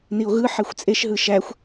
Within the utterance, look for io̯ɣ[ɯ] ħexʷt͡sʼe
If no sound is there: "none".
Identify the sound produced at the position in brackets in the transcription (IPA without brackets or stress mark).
ɯ